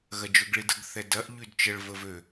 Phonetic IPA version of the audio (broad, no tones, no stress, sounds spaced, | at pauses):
ɣ ɐ d͡ʒ ø ɡ ɭ i d ə ɡ θ ɛ d ɐ ʔ ʎ y d t͡ʃ ə ɭ v ə v ø